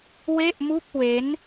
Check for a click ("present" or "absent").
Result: absent